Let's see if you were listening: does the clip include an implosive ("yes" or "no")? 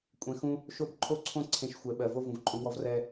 yes